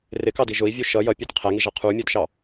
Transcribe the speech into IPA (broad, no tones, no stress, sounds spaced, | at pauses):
r ɪ k ɑ d i ʒ ʊ i̯ vʲ u ʃ ʌ j ʌ pʲ ə˞ t qʰ æ ŋ i ʒ ɑ qʰ u mʲ ə˞ d ʃ ɑ